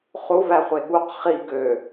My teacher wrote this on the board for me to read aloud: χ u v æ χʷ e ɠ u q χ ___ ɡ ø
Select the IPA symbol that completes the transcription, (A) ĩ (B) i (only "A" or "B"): B